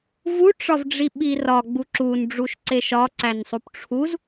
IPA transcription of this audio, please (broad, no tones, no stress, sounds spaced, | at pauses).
v u ʈ͡ʂ ɒ v ɖ͡ʐ i ɓ i r ɒ ɡ͡b u ǁ u n ɖ͡ʐ u ʃ ǀ e ʃ ɒ ǀ æ n sˤ u p ʈ͡ʂʰ u z